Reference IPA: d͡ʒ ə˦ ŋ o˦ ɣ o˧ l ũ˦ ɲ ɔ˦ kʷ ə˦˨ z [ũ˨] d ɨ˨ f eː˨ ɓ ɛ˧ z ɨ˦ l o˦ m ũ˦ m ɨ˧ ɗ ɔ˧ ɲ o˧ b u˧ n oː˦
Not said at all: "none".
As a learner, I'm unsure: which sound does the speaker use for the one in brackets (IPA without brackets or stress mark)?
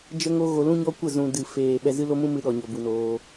ũ˨